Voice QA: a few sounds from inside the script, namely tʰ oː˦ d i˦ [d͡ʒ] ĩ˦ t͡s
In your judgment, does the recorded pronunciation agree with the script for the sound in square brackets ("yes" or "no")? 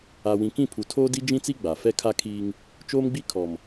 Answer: yes